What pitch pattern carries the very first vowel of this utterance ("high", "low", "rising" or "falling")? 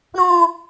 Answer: high